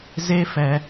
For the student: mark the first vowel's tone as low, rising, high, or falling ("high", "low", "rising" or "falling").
high